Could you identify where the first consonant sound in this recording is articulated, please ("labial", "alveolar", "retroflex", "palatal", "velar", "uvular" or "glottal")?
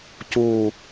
palatal